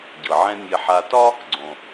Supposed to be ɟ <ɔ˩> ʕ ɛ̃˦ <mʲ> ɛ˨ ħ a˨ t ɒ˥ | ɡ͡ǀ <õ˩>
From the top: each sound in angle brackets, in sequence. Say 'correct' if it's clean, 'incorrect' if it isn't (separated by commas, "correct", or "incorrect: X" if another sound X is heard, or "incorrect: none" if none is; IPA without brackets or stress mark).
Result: incorrect: ɤ˩, correct, correct